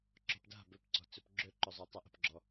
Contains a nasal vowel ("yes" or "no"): no